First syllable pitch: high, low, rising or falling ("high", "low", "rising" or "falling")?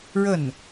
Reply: falling